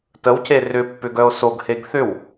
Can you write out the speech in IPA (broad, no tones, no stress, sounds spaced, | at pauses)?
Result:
t ə w c e r ʏ pː ʏ ɡ œ o̯ s o ɡ h e ɡ θ ʏ w